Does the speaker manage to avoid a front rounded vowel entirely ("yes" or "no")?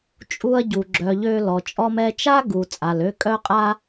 no